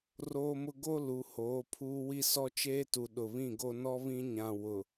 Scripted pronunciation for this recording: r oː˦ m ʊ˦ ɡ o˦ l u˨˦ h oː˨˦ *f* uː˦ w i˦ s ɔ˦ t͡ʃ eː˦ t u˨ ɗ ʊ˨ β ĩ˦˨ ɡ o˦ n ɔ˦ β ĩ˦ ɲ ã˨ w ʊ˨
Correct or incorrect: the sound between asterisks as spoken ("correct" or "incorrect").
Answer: incorrect